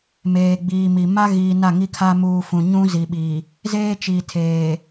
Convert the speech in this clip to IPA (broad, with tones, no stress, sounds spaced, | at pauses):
m eː˨ ɡ͡b iː˨ m i˨ m a˦ ɣ iː˨ n a˦˨ ŋ i˦ kʰ a˦ m uː˨ f ũ˨ ɲ ũ˦ z i˨ ɓ iː˨ | z eː˦ t͡ʃ i˨ tʰ eː˨